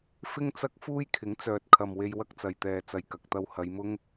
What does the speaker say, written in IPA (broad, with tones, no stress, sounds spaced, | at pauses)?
f ɪ˥ ŋ t͡s ɐ˥ k̚ f uː˥ j kʰ ɪ˨˥ ŋ t͡s œː˨ t̚ kʰ ɐ˨ m w e˧ j w ɐ˥ k̚ t͡s ɐ˨ j t̪ ɛː˨ t͡s ɐ˨ j k ɐ˨ k̚ t̪ ɐ˧ w h ɐ˨˧ j m ʊ˥ ŋ